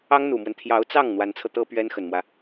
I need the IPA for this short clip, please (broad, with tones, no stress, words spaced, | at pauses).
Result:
ɑ˥ŋn̪u˨˩mwə˦n t̪ʰjɑ˧˥ʊ̯t͡sɑ˥˩ŋ n̪wa˧˥nt͡sʰɤ˧t̪ɤ˥ pɥɛ˥nxə˨˩nmwä˦